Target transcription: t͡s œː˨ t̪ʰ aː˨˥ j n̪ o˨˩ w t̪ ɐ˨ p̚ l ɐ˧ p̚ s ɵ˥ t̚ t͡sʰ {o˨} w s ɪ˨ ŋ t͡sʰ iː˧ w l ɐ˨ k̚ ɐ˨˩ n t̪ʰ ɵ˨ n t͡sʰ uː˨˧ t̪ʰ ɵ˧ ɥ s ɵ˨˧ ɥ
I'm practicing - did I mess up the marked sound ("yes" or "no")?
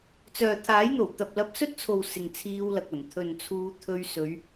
no